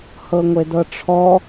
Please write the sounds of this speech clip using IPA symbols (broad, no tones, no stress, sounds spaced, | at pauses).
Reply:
h ɤ ŋʷ e d ɤ ʈ͡ʂʰ ɔ